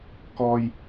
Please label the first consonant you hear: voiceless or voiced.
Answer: voiceless